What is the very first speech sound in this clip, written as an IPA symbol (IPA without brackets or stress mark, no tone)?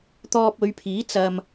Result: t̪